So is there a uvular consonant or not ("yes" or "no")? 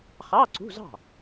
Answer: yes